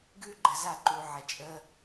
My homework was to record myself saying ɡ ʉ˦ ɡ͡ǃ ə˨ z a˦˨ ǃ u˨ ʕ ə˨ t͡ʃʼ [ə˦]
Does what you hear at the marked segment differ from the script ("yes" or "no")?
no